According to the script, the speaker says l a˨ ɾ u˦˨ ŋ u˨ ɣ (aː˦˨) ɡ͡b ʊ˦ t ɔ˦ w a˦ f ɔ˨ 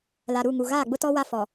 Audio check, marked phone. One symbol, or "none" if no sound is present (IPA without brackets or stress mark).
aː˦˨